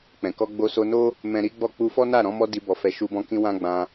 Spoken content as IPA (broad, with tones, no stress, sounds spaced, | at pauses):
k͡p ɛ̃˨ k ɔ˧ ɡ͡b o˧ s o˧ n o˦ | m ɛ̃˦ ɾ i˦ ɡ͡b ɔ˦˨ k͡p u˧ f ɔ˦ n a˦˨ ɾ ɔ̃˨˦ m ɔ˧ d i˧ b ɔ˧ f ɛ˧ ʃ u˧ b ɔ̃˧ k ĩ˧ w ã˦ ɡ͡b ã˧